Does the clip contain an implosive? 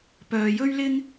no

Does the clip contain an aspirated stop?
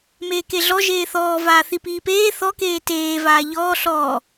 no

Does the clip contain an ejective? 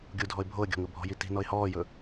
no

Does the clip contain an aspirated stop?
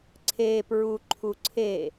yes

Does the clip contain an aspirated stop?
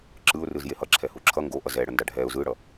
yes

